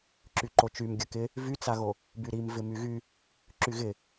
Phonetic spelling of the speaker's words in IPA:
ǁ y ǃ o t͡ʃ y m ɡʲ ə k ɪ | v y t͡s a ɣ o | b y ɾ i m v ɪ m y ɣ y | ǁ y ɣ ɪ

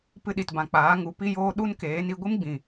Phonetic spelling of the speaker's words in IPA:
p ɨ˧ ɗ i˨ t b ã˨ k͡p aː˨˦ ŋ u˨˦ p i˦ j oː˦ ɗ u˦ n k eː˨˦ n i˧ ɡʷ ɨ˦ m ɡ͡b ĩ˨

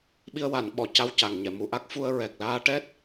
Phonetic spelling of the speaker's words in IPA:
ɓ i˧ ə̯ w a˨˩˨ n ɓ ɔ˨˩˨ c a˧ w c a˨˩ ŋ ɲ ɛ˨˩˨ m u˨˩˨ ʔ a˦˥ k̚ f u˧ ə̯ ɹ ɛ˨˩ k̚ l aː˧ ʈ ɛ˦˥ t̚

